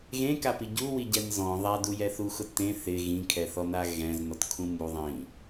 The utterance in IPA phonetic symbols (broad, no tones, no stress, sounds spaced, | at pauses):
ɣ ẽ k a p i ɟ u w i ɟ ɛ n z ɔ̃ ðˤ a d u j ɛ θ u x ʊ t ẽ θ ɪ ɣ ĩ kʰ ɛ θ ɔ n a ɣ ɛ̃ z n ɔ t kʰ ũ m u ðˤ ĩ